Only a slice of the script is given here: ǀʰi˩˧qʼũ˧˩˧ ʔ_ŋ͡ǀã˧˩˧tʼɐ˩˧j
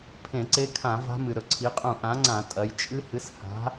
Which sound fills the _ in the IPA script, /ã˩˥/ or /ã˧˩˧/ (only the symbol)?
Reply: ã˩˥